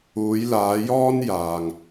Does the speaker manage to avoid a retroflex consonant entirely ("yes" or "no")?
yes